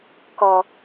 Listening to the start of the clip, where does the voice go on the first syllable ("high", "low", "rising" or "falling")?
low